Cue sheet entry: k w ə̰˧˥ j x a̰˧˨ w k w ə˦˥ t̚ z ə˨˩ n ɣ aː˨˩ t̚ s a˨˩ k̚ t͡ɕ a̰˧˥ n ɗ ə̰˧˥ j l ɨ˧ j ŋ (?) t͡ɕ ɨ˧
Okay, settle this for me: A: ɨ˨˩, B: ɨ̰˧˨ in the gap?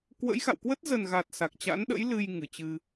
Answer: A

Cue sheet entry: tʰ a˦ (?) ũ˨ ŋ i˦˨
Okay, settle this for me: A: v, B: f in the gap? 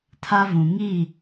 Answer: A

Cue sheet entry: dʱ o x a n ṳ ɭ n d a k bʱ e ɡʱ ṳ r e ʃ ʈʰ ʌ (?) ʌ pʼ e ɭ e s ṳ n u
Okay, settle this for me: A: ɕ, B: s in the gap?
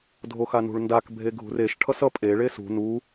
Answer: B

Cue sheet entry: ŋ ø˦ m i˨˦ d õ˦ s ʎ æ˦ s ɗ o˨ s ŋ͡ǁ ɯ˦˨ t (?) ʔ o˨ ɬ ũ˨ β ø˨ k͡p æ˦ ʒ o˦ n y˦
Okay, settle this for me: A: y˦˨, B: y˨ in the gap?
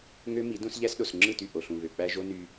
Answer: A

